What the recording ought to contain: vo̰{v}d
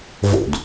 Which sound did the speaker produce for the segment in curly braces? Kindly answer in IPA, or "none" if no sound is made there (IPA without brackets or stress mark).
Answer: none